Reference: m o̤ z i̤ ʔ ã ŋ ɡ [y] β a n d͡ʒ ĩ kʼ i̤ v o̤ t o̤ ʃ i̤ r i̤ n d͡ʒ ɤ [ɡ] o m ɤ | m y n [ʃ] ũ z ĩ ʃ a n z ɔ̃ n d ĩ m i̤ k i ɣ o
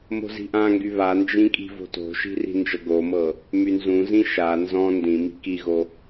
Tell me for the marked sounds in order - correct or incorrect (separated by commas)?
correct, correct, incorrect